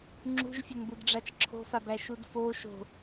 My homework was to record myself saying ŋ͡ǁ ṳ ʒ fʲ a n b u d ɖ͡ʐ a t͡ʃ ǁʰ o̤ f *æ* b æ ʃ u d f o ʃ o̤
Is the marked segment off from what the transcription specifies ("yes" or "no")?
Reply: yes